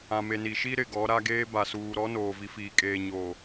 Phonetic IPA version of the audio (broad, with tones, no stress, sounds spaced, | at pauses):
ã˨ m e˨ n i˨ ʃ i˦ ɾ ɪ˨ ɡ ɔ˨˦ ɾ a˦ ɡ eː˦ b a˨ s uː˨ ɾ ɔ˦ n oː˨ v i˨˦ f iː˨ kʼ eː˨ ɲ oː˨